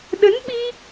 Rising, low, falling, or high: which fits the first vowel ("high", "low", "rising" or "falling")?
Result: rising